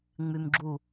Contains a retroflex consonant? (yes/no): no